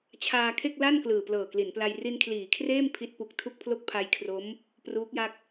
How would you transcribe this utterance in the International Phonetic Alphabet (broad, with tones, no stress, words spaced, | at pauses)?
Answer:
t͡ɕʰaː˧kʰe˥˩k̚la˥˩n klɯː˨˩plɤː˨˩kli˩˦npla˧j ri˧nkʰliː˩˦kʰreː˥˩m pʰi˦˥t̚pu˨˩k̚ tʰu˥˩k̚pʰlo˥˩k̚pʰa˧jkʰro˦˥m | pruː˦˥k̚ja˥˩k̚